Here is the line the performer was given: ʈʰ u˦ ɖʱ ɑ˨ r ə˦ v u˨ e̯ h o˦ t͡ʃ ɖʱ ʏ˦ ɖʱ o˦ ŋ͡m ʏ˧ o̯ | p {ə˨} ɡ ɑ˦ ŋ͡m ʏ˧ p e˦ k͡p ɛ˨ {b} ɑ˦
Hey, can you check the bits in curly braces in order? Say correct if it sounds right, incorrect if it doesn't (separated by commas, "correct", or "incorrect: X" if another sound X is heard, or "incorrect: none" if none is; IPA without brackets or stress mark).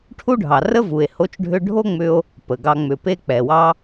correct, incorrect: w